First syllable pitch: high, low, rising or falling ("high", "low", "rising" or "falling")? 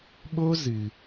high